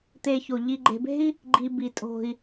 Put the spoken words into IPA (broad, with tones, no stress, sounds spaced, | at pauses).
t̪ e˨ ç o˩ ʎ i˨ ɡ͡ǃ e̤˨ b e̤˥ i̯ | ɡ͡ǃ i˨ b i˩ tʼ o̤˩ i̯